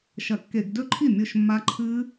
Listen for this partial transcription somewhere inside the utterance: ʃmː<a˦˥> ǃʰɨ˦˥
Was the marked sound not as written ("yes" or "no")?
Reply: no